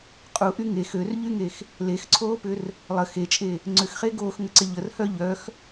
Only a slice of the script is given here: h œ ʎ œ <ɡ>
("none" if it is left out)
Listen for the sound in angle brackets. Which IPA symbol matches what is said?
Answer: x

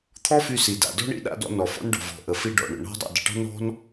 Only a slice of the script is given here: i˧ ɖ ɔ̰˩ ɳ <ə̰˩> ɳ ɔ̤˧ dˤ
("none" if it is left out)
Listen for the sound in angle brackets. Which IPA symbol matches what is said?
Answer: ə̰˩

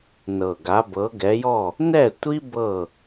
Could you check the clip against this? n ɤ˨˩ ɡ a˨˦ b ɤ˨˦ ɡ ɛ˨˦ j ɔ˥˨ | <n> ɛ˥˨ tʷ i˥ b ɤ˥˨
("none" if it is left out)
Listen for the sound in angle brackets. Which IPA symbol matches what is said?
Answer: n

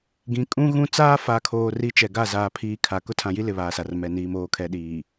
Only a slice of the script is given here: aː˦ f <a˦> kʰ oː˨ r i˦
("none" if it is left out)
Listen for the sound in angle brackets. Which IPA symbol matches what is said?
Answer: a˨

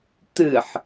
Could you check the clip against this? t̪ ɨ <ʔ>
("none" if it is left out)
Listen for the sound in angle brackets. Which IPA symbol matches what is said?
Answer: ħ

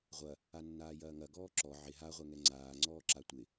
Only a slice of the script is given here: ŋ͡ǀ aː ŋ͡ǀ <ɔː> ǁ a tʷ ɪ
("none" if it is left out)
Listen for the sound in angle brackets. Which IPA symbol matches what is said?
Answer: ɔː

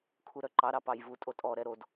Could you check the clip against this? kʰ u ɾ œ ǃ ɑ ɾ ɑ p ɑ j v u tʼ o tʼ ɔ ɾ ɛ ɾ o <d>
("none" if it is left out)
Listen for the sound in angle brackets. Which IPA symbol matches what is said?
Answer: d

